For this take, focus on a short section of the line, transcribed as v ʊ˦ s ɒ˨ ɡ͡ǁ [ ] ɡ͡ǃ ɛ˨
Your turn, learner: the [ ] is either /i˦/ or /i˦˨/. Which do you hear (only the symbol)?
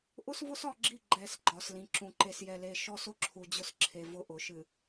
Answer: i˦˨